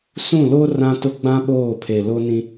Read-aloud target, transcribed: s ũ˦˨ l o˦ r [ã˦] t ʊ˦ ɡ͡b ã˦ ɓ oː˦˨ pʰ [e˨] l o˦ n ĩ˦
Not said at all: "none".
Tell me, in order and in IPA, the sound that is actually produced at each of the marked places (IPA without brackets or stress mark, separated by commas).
ã˦, e˨